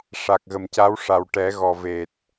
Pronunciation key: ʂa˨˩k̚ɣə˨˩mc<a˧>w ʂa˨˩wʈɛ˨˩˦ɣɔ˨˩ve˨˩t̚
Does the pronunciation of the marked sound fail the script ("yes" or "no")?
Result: yes